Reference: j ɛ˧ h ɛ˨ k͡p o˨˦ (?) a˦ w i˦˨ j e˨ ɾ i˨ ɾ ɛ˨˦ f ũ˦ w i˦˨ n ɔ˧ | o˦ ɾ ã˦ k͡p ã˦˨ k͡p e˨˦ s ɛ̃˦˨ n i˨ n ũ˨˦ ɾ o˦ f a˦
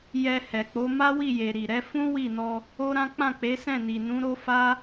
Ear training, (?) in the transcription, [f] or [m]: m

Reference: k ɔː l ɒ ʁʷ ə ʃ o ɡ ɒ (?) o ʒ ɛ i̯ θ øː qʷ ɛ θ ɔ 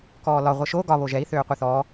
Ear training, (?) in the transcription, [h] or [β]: β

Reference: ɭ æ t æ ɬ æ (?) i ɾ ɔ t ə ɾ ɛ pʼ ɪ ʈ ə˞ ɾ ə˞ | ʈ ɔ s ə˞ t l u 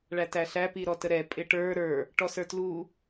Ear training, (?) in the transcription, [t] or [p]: p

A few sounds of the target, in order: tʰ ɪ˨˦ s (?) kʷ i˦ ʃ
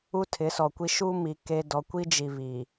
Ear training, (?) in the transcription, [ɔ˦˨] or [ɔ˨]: ɔ˨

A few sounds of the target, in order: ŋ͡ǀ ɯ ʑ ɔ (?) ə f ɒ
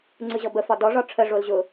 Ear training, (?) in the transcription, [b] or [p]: b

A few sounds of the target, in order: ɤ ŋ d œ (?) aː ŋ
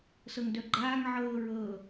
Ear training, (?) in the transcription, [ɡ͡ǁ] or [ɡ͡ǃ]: ɡ͡ǃ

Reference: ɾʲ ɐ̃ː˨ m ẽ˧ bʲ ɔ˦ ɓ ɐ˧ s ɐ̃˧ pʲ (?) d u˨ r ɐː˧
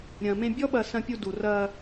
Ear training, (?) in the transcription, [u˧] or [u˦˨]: u˧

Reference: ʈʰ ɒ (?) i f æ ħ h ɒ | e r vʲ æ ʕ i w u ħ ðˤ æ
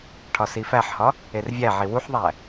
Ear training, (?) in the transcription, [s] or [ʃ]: s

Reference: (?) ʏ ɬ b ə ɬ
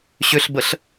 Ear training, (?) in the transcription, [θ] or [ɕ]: ɕ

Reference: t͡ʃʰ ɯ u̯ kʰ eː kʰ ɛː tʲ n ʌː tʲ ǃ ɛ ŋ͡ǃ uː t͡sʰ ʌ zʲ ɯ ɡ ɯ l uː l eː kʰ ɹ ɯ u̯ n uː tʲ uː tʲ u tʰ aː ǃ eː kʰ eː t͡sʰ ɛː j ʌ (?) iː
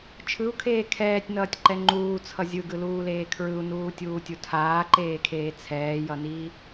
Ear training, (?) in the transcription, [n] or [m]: n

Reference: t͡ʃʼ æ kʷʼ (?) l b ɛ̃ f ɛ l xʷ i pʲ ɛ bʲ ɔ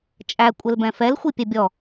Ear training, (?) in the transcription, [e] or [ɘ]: ɘ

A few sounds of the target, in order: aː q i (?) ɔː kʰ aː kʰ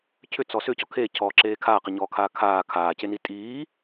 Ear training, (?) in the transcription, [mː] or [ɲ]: ɲ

